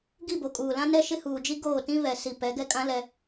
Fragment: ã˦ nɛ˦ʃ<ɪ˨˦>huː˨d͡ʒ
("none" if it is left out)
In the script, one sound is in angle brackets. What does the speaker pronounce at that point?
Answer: ɪ˦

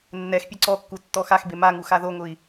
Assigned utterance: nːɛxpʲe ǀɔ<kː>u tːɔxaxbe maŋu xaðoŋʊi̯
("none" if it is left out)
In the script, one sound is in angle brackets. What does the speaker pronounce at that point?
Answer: kː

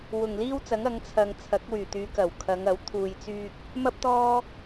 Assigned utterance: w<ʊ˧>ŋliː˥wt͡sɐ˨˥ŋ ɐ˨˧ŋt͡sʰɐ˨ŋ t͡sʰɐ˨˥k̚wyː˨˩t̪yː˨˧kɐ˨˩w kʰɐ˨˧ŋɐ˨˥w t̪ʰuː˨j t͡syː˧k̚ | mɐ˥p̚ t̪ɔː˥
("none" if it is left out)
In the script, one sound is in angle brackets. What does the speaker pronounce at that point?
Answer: ʊ˨˩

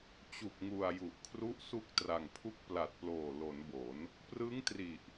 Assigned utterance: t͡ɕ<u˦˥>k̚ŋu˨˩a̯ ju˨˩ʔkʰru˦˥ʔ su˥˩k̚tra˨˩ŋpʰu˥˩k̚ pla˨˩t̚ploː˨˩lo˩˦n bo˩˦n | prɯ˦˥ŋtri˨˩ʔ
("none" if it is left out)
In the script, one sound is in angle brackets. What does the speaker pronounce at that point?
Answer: u˨˩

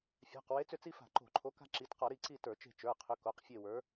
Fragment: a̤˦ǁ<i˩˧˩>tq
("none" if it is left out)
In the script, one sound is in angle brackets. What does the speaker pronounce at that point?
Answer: i˩˧˩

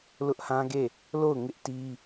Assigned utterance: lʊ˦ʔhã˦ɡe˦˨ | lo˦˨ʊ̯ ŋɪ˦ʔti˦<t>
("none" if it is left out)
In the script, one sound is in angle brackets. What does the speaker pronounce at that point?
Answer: none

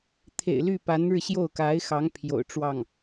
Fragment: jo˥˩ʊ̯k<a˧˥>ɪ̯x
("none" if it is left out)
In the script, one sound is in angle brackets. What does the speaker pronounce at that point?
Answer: a˧˥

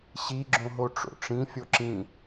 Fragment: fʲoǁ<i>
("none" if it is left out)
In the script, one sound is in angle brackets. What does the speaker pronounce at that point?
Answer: ĩ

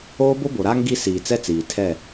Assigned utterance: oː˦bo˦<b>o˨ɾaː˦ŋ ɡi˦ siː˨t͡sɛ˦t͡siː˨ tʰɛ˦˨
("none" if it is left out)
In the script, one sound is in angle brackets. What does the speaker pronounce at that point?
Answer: b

